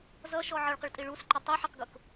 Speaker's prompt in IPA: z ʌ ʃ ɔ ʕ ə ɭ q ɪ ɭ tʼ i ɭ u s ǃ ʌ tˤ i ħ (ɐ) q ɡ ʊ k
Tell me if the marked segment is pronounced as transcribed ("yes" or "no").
no